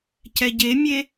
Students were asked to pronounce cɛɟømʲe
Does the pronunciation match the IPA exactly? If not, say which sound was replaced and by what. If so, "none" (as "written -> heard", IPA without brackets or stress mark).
ø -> e